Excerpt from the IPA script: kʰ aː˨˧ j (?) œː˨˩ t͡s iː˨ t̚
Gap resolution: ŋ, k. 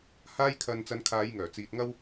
ŋ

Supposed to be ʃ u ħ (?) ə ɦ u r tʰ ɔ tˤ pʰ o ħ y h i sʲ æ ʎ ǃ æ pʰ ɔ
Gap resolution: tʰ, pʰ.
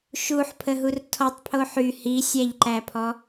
pʰ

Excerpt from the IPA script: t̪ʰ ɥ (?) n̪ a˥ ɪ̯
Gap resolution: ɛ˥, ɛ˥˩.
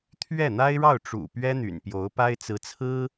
ɛ˥˩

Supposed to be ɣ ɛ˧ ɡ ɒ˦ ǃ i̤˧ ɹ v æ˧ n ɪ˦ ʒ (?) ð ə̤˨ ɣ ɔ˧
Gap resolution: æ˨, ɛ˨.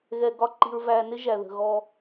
æ˨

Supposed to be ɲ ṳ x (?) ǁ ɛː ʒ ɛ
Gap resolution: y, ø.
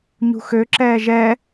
ø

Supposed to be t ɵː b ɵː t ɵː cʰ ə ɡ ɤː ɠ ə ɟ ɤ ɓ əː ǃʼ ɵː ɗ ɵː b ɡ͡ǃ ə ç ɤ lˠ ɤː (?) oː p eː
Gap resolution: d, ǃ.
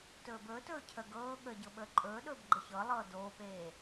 d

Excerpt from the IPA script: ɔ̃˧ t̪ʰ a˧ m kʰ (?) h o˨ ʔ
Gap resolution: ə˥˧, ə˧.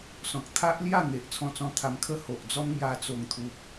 ə˥˧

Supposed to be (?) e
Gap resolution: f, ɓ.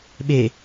ɓ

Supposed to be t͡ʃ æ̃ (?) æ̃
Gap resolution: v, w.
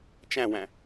w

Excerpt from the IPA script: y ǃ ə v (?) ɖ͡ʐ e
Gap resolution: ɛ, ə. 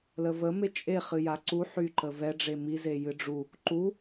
ɛ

